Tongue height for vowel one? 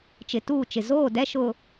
high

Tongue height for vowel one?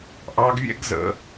low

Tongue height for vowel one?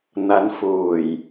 low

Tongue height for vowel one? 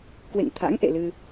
mid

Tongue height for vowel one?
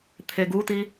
mid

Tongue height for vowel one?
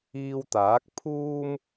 high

